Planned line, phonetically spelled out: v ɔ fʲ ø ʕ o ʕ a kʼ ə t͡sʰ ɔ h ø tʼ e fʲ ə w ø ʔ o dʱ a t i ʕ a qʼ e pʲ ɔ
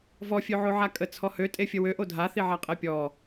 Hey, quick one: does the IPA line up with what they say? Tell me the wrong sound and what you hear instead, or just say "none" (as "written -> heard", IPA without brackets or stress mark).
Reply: t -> θ